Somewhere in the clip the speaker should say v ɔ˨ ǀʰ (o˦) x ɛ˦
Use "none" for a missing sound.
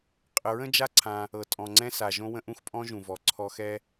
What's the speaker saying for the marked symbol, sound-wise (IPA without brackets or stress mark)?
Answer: ɔ˦